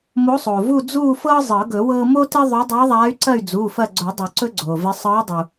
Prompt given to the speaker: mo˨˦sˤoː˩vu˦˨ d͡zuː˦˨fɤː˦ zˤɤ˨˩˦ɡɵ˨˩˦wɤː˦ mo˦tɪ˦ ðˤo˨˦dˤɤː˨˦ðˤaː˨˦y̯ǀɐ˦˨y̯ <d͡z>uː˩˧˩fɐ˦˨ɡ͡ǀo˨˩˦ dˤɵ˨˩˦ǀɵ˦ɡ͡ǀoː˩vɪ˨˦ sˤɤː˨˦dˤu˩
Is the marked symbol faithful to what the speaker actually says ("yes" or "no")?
yes